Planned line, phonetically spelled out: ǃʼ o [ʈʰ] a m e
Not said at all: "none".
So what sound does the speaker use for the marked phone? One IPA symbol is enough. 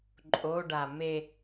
ɖ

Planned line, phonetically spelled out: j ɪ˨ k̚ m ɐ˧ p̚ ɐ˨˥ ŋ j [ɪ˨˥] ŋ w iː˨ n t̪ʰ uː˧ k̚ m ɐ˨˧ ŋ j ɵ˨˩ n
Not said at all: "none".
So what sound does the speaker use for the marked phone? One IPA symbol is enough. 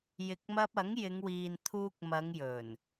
ɪ˨˧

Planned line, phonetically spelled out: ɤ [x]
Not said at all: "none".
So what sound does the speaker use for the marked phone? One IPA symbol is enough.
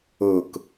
k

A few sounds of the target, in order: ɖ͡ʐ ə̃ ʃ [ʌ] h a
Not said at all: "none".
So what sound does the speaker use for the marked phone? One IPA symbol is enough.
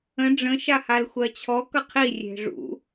a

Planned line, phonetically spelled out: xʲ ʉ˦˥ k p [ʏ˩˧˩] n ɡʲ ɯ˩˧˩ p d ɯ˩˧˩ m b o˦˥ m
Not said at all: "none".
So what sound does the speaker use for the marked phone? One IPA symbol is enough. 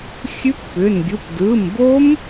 ʏ˩˧˩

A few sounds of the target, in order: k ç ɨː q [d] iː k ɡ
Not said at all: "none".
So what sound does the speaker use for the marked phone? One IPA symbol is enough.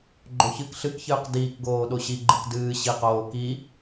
d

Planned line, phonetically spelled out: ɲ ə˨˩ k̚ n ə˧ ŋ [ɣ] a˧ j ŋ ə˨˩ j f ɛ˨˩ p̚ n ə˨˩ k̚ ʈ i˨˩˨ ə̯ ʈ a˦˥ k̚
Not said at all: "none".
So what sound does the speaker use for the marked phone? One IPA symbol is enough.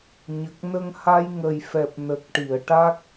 h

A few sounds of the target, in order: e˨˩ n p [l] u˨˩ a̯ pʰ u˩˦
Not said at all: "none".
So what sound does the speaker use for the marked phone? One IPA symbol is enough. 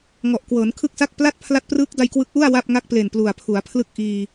l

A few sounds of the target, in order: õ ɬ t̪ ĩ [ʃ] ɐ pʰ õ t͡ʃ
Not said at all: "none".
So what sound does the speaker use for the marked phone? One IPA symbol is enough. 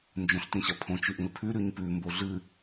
ɕ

